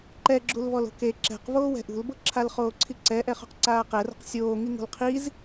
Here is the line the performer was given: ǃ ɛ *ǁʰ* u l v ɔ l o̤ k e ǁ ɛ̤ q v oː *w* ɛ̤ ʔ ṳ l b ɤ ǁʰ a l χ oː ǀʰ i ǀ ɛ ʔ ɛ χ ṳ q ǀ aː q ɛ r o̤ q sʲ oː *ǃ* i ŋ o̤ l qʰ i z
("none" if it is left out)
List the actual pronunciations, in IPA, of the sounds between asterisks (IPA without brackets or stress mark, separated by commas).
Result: ɡ͡ǁ, w, ŋ